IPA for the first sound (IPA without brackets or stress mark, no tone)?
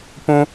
p